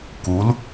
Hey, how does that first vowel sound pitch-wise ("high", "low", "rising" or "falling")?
rising